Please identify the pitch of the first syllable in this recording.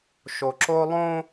low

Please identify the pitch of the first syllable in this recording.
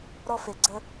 high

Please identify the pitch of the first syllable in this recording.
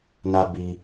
high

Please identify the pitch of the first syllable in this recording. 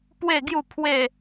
falling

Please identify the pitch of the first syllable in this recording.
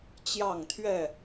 falling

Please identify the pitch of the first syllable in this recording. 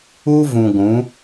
high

